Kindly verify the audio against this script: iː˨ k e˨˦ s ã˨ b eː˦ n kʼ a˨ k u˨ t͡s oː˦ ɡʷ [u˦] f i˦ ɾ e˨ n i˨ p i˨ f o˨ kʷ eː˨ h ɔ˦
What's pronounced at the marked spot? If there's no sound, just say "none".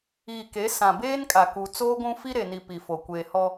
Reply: ũ˦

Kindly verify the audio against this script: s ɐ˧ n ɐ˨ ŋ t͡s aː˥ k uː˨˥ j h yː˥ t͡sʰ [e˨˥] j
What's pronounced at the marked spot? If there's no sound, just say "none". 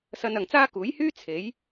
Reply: e˨˥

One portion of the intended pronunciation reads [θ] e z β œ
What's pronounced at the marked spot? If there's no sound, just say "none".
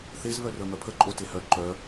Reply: θ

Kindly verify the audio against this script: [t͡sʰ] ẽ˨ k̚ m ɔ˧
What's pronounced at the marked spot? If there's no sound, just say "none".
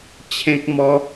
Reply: t͡ɕʰ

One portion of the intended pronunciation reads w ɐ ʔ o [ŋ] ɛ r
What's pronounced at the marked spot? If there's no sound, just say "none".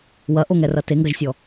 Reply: ŋ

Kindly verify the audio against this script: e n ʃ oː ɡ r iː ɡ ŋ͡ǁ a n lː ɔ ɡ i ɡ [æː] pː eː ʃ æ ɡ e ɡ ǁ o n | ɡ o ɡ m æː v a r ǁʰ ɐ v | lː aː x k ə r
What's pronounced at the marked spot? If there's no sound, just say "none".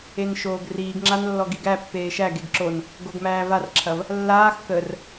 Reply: æ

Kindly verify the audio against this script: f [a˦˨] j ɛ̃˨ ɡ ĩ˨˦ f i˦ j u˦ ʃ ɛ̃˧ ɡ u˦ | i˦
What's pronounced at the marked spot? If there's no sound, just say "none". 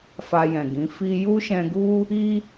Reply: a˧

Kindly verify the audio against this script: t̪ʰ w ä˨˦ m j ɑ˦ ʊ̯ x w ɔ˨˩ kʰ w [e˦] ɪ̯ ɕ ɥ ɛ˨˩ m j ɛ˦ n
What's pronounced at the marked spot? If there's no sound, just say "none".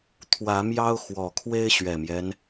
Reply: e˦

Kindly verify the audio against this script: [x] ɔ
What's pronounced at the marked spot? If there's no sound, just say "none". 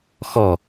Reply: x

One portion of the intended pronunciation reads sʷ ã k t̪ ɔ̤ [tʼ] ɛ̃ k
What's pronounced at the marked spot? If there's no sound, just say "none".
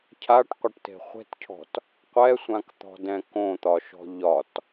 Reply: d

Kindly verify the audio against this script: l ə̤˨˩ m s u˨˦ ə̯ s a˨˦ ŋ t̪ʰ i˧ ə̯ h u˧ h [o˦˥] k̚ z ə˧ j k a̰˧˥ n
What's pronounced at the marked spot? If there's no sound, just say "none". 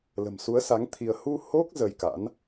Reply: o˦˥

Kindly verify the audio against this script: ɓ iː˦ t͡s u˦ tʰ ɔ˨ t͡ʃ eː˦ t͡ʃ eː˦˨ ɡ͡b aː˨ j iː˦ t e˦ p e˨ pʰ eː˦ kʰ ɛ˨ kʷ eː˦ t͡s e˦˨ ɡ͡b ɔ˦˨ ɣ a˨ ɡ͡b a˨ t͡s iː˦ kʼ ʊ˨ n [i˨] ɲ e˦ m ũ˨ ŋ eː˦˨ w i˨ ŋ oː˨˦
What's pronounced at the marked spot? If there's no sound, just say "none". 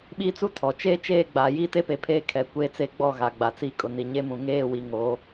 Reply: i˨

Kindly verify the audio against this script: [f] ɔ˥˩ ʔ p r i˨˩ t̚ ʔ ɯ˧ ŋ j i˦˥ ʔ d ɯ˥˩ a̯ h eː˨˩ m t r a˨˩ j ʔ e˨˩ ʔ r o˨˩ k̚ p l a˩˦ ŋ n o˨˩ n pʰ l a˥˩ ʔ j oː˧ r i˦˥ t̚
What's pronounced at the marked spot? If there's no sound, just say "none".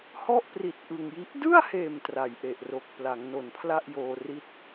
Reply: h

